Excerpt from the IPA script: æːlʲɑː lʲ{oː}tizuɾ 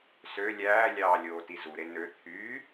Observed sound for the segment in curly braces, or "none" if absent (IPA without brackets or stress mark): oː